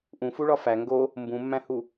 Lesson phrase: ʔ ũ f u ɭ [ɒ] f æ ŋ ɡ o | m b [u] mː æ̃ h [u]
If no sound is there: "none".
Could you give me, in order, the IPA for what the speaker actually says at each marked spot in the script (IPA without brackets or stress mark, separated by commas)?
ɒ, ũ, u